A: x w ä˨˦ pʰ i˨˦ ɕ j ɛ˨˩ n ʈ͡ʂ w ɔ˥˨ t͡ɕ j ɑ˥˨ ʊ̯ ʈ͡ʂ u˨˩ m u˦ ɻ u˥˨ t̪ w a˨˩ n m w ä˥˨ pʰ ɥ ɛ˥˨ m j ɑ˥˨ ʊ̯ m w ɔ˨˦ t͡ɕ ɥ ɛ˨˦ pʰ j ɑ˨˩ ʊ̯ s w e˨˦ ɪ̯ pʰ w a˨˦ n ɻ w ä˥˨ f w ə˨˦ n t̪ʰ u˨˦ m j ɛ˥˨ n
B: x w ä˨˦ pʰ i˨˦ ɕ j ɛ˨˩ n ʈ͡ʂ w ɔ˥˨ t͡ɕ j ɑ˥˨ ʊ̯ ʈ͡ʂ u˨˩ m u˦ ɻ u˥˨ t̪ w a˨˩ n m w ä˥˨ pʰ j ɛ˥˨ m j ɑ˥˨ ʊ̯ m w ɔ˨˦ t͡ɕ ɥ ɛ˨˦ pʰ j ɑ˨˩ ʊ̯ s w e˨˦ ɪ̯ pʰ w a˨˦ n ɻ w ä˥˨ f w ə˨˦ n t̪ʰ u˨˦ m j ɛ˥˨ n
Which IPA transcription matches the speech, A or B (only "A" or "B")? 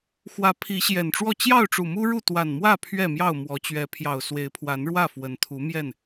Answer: A